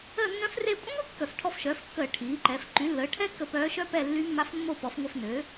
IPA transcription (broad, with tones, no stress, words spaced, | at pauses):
əː˦˨nːœ̃˧˥fre˦˨ kʷʼœ̃˥ŋʷi˥ kːœ˧˩˧fʈʰɔ˦˨fʃœː˩˥fkːəː˧˩˧ ʈʰiː˩˥ǃɛ˩˥f ǃy˩˥lːəː˩˥ ʈʰɛ˥ kːə˦˨pœː˧˥ʃœ˥pɛ˦˨ lːy˧˥mːa˧˥fmːo˦˨ pɔ˩˥fŋʷœ˦˨fnø˩˥